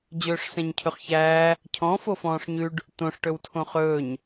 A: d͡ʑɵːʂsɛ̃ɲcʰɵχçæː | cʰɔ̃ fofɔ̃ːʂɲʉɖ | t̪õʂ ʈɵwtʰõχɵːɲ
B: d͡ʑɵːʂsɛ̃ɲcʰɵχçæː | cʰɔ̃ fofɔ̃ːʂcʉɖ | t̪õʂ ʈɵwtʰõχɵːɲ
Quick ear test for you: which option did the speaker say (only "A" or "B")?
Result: A